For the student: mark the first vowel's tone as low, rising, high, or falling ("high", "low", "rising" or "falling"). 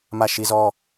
falling